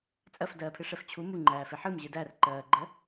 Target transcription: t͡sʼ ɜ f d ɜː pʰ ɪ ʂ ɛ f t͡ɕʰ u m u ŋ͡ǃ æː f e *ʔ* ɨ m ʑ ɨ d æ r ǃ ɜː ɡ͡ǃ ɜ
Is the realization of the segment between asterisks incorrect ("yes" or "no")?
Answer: yes